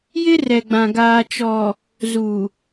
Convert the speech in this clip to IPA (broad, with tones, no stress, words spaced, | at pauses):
jɪ˦rɛ˨ɡ͡bã˨ ɡaː˨t͡ʃɔ˨ | zuː˨